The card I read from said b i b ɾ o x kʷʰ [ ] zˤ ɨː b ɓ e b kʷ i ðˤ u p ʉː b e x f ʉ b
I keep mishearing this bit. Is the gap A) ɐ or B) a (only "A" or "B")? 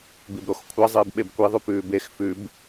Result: A